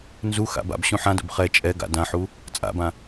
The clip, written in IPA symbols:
nzuxa̰ ba̰b ɕũħãdo̰b χɛ t͡ʃʼɛ ɡa̰ dãħu | t͡sʼa̰bã

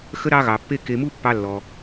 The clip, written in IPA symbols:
xə˦ɾɑ˦ɣɑ˧pːe˦ ke˧mu˦ pːɑ˦lːɔ˧

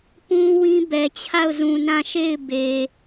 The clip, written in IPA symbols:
pũ˦ wĩ˦bɛ˨ t͡ɕʰa˦˨ʊ̯zũ˨nã˦˨ ʃe˦˨ɪ̯be˨

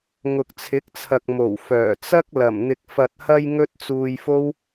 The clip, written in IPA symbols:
ŋʊ˨k̚t͡sʰɪ˨˥k̚t͡sʰɐ˨k̚ mo˨˩wfœː˨˩t͡sɐ˥k̚ lɐ˨˩mn̪ɪ˨k̚ fɐ˨t̚hɐ˧j ŋɵ˥t̚ t͡suː˧jfo˥w

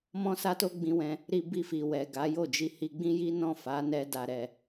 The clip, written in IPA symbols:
mɔ̃˦sa˦to˦ ɡ͡bĩ˧wɛ̃˧ | ɾi˧ bi˧fi˨ wɛ˨ɡa˨˦jo˦˨d͡ʒi˧ hi˧ɡ͡bĩ˦ji˦ nɔ̃˦˨ fa˨˦nɛ˧ da˧ɾɛ˧

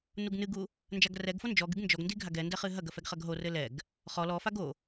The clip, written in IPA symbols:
nuɡnɨɡu | nd͡ʒaɡrɛɡfo nd͡ʒɔɡɨɡ nd͡ʒɔɡndi ɡʱaɡɛndɛ χɨɦɐɡɐ fɛɡχɐɡɦorɘ lɛɡ | χɔ lɔfaɡ o

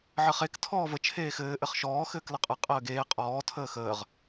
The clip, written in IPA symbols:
ʕɘχek tʰɔːvə t͡ʃʰeːxɘː ʔɘχʃɔː xɘːkləqʼɘ qʼəːɡeː qʼɔː tʰəːxəːʁ

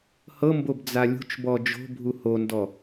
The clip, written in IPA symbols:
hɤmbob d͡zalʲṳt͡ʃbɔ d͡ʒo̤bʱu hondɔ

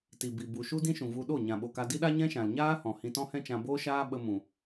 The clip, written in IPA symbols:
ti˨bi˨ bu˨ ʃu˦dĩ˦ʃũ˨vu˧ ɗo˦˨ ɲã˨ɓo˨ka˧ di˦ɗa˦ ɲɛ̃˦ʃã˨l ɲaː˦ hɔ̃˨hĩ˧tɔ̃˦ hɛ̃˦t͡ʃã˧boː˦ʃaː˦ ɓə˧mũ˨

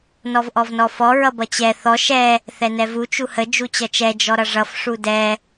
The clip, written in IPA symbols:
nɔvʔɔvnɔfɔ ɹʌbʌt͡ɕɛ θɔ ʃɛ | θɛnɛvu t͡ʃuhə d͡ʒut͡ɕʌt͡ʃɛ d͡ʒɔɾʌʐʌf ʂudɛ

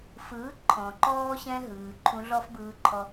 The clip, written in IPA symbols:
fɯː˩˥ ǃʰɔ̃˩ǃɔː˧ɕɛ̃˧ɦɯː˩ ǃʰũ˧ɮɔ˥fbɯː˧ǃʰɔ˧

